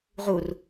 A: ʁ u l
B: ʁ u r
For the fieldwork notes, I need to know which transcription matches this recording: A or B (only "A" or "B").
B